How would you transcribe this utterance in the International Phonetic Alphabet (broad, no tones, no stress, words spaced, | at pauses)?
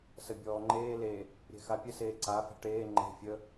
səbʲɔːŋ͡ǃeː le | ɾʲɛ̤xapʲə seːǀa fɛ̤ʈeː ŋ͡ǃɛ̤ fʲə